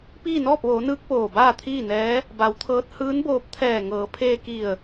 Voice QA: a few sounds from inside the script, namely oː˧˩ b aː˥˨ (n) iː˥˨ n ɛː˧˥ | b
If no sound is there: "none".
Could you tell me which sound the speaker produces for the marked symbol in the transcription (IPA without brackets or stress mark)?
t̪ʰ